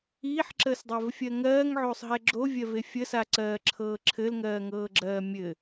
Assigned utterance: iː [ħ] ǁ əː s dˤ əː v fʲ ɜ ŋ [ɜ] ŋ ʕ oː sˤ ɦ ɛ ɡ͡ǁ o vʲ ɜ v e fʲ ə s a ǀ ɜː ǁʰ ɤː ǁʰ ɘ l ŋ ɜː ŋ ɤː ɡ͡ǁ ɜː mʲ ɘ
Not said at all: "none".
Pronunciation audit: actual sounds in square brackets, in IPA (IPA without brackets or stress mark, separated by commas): ħ, ɜː